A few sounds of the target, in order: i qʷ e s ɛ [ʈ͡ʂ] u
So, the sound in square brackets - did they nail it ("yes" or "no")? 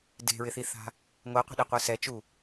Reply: no